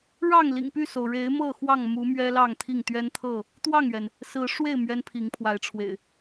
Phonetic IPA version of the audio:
ɻɑ˥˨ŋ lḭ˨˩ŋpy˥˨so˩ʊ̯ ɻe˨˦ɪ̯ mɤ˥˨xwɑ˥˨ŋmu˨˦ mɥɛ˦lɑ˥˨ŋt̪ʰi˥˨ŋ t̪ɥɛ˦nt̪ʰɤ˥˨ | t̪wɑ˥˨ŋɥɛ˩n | sɹ̩˨˦ʂwe˥˨ɪ̯ mɥɛ˦npʰi˨˦ŋpʰwa˨˦ɪ̯ʈ͡ʂʰwḛ˨˩ɪ̯

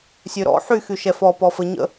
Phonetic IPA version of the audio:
sʲøɾɔ̰ ħy xyʃɛfɔ pɔfəɲə̰

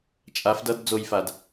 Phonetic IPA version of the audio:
t͡ʃʼaf dʌd d͡zojfad

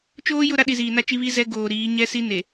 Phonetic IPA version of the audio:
t͡ʃoː˦jʊ˦˨ɾa˦ ɗi˨ziː˨na˦t͡ʃi˦ βi˦ zɛ˦ ɡoː˨ɾiː˨˦ ɲɛ˦si˦ ne˨

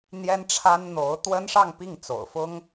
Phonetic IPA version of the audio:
n̪jɛ˥nʈ͡ʂʰa˥nn̪o˧˥ʊ̯ t̪wə˥nʂɑ˥˧ŋ pi˥˩ŋt͡so̰˨˩ʊ̯fʊ˥ŋ

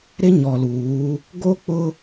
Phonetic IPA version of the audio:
ɾɪ˦ɲɔ˨luː˨˦ | ɡo˦k͡pʊ˦

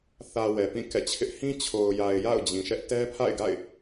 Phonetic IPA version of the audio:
θä˨ wɛ˨pĩ˦˨kɛ̰˦˨t͡ɕʰɪ˦ʔ hĩ˦t͡ɕʰo˨ʊ̯ja˨ɪ̯ ja̰˦˨ʊ̯d͡ʑĩ˨ʃɛ˦ʔ tɛ˦pʰa̰˦˨ɪ̯ɡa̰˦˨ɪ̯

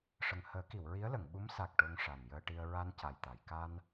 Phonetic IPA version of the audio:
ʂə˨˩ŋhəː˨˩˦ki˨˩˨w ɹi˧˥ə̯lə˨˩˨ŋɓu˧˥m sa˨˩k̚ ʈo˧ŋʂa˨˩njəː˧ʈi˧ə̯ ɹa˧n ca˨˩jt̪a˨˩˨j ka˧n

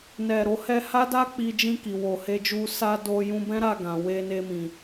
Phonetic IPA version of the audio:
nɛ˨ ɾo˨hɛ˧ha˦da˦ k͡pi˧d͡ʒĩ˧ ki˨wo˨he˧d͡ʒu˧ sa˧ do˧ jũ˧bɛ̃˦ɾa˦˨ ɡã˨we˧ne˧mĩ˨

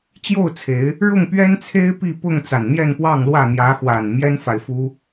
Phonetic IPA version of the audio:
t͡ɕjo˥˨ʊ̯t͡sʰe˨˦ɪ̯ | ɻʊ˥˨ŋpɥɛ˦nt͡sʰe˦ɪ̯pi˥˨ pʊ˥˨ŋ t͡sa˨˩nn̪jɛ˥˨npwɑ˥˨ŋlwä˥˨ n̪jä˨˦xwa˨˩n mjɛ˦nfa˨ɪ̯fu˦

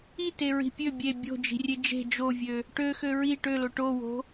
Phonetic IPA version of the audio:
i teɹi̤pʲø bʲe bʲo̤ d͡ʒi̤rʲed͡ʒe̤ d͡ʒovʲø | ʈø xøɹi ʈølo ʈowo̤

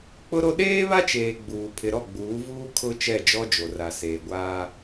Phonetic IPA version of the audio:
k͡pʊ˦ɾo˦ ɗeː˦βa˦t͡ʃeː˨ ɡ͡buː˨ pʰɪ˨ɾɔ˦˨ɡ͡buː˨˦vuː˦ kʰʊ˦ t͡ʃɛ˦˨d͡ʒɔ˦d͡ʒo˨ ra˨ seː˨ɡʷaː˦

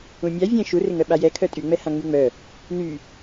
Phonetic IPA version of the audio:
ũmʲa vʲɛ̃ ʃu rɪŋœɓajɛ kʰœtʼy ŋ͡mɛhãŋ͡myŋ͡mœ | ny

